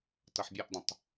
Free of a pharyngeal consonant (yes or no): no